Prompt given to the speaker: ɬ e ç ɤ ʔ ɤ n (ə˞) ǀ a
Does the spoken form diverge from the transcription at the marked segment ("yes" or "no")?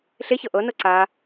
yes